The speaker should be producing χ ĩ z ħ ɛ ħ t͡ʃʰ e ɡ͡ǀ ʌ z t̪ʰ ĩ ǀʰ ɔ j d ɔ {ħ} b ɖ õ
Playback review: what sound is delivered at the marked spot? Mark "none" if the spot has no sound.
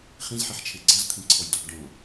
none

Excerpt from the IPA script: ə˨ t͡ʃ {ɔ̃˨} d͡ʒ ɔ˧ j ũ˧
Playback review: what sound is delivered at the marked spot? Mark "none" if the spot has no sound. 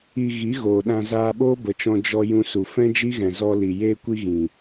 ɔ̃˧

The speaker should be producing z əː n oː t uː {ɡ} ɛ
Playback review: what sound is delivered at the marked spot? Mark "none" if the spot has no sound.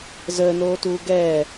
ɡ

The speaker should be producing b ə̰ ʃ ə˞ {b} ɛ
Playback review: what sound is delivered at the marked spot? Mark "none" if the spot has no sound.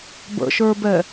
b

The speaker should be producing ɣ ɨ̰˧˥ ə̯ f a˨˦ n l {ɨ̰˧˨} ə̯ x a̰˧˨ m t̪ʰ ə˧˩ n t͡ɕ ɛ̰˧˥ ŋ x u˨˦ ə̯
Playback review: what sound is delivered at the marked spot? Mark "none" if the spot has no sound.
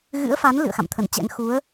ɨ̰˧˨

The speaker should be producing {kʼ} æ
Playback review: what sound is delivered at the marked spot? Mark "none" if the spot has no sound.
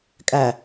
kʼ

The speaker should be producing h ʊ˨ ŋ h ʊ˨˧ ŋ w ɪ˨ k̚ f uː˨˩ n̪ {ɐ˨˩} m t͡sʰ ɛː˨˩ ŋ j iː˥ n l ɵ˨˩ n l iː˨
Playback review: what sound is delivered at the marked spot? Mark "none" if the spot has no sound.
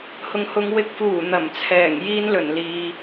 ɐ˨˩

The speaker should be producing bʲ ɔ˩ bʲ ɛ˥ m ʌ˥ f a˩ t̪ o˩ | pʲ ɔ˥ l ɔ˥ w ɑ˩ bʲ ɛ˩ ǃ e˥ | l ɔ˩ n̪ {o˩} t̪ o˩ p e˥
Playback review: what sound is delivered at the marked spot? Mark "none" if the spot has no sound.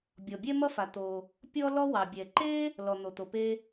o˩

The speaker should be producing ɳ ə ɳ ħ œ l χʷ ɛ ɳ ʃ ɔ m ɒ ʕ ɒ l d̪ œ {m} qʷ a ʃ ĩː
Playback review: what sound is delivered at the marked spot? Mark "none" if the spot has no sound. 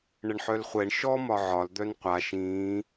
n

